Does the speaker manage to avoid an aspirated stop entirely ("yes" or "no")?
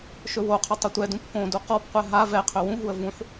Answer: no